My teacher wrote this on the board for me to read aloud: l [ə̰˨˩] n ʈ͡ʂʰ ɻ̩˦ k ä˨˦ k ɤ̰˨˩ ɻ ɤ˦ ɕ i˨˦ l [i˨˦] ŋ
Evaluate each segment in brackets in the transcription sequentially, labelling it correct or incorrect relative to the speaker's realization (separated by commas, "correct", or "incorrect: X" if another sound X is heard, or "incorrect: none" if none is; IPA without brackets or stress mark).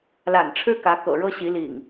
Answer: incorrect: a̰˨˩, incorrect: ḭ˨˩